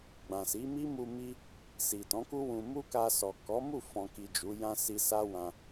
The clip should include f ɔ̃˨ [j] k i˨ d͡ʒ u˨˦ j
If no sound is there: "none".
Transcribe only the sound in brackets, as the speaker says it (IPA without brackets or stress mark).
none